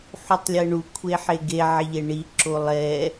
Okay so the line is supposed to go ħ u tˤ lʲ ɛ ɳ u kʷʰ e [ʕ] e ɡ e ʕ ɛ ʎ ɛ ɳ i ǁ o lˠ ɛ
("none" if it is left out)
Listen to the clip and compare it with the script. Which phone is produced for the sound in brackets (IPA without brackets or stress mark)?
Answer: ħ